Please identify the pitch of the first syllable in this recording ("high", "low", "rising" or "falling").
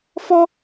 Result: high